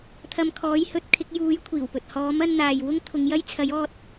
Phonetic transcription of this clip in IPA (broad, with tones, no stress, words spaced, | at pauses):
t̪ʰɐ˧mkʰɔː˨˥jhɵ˨˥t̚kʰɪ˨˥k̚ juː˨˥j kʷʰiː˨˩wpɵ˨t̚ hɔː˨˥mɐ˧nn̪aː˨j wʊ˥ŋ t̪ʰʊ˨˧ŋjɐ˥j t͡sʰɐ˨˥jɔː˧t̚